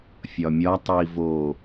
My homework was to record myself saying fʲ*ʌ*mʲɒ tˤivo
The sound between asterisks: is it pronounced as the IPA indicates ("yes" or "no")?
no